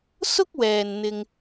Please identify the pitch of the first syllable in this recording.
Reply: high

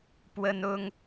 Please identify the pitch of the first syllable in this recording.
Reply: high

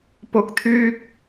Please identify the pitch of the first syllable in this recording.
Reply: rising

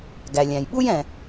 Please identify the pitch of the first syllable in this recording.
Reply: low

